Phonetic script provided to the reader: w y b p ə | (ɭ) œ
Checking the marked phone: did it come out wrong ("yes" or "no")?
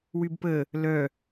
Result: yes